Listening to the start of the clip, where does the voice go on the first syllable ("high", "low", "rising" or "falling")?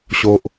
high